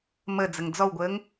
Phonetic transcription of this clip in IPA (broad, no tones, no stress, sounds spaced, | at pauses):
m ə d͡z ə ŋ d͡z ɔ w ɡʷ əː ŋ